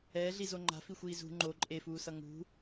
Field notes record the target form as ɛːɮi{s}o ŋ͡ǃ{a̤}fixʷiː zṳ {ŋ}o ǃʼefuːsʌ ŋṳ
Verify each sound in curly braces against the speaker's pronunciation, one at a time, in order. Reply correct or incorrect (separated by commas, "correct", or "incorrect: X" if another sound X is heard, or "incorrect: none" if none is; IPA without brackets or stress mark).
incorrect: z, correct, incorrect: ŋ͡ǃ